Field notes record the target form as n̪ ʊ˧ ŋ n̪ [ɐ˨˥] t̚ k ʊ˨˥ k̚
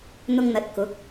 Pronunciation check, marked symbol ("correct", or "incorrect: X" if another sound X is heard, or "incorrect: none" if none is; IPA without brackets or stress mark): correct